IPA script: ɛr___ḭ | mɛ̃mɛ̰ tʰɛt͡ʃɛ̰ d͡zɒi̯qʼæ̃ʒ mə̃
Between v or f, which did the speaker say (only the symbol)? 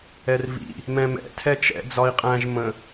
v